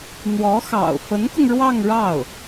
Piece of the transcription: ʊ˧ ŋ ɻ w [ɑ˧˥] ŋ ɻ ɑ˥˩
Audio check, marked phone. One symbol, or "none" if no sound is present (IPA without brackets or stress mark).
ɑ˥˧